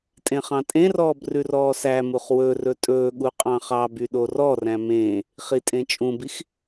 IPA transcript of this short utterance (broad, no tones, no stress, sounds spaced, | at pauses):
tʼ ẽ χ ɑ̃ tʼ ẽ r ɔː b r ʉ r ɔː s æ m u χ w ɵ r ɵ tʼ ɵː ɠ u qʼ ɑ̃ χ ɑ b y ɗ o r ɔ r æ̃ m ẽː | χ i tʼ ẽ t͡ʃʼ ũ b i x